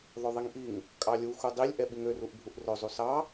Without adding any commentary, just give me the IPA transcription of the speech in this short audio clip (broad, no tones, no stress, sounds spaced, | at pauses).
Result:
ðˤ ɵ ðˤ i ŋ ʔ i ŋ | kʼ ɑ lʲ u x u dˤ i lʲ ʔ ɛ ɓ i ŋ ø r u ʔ bʱ u ʔ r ɵ zˤ u s ɑ